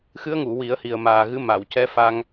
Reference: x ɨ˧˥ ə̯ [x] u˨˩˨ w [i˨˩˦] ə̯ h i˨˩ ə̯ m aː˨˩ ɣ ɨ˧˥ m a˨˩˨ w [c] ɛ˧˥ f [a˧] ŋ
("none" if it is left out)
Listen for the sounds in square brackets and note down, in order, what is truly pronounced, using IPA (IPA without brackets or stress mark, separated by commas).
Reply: ŋ, i˨˩˦, c, a˧